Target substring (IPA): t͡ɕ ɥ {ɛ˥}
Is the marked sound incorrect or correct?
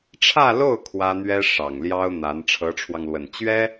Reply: correct